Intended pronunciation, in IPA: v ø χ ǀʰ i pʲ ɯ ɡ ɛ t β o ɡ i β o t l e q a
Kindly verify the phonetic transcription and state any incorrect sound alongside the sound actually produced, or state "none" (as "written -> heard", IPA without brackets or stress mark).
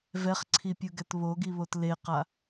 ø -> ɛ